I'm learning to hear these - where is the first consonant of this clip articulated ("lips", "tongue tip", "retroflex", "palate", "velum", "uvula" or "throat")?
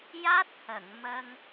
palate